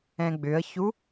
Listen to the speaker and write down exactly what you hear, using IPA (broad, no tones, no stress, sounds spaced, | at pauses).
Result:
ɛ̃ ɡ͡b ʏ ə̯ ç u